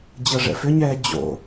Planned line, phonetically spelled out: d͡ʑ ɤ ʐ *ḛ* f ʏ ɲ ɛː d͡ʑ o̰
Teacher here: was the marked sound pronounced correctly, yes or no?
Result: no